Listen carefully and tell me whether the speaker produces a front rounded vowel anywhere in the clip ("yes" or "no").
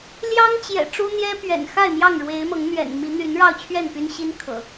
yes